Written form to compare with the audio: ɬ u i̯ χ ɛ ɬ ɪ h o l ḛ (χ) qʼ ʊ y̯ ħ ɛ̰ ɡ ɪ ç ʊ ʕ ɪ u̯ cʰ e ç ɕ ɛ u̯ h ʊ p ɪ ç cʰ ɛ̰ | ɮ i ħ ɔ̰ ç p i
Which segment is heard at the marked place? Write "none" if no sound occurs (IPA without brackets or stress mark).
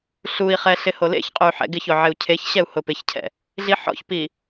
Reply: ç